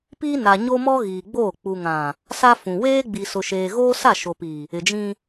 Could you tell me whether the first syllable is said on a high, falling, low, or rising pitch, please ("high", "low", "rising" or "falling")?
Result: high